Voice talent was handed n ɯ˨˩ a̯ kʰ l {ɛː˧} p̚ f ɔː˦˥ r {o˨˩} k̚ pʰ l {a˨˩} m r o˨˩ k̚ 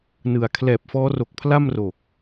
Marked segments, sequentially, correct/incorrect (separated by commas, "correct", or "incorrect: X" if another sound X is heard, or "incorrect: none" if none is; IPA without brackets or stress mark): incorrect: ɛː˨˩, correct, incorrect: a˥˩